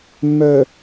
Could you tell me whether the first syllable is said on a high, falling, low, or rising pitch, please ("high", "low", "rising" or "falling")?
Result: low